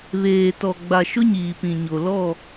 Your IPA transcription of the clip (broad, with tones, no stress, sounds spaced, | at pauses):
β eː˨ t ɔ˨ ɡ͡b a˨ ʃ ʊ˦ ɲ iː˨ p ĩ˨ ɲ o˨ l ɔ˦˨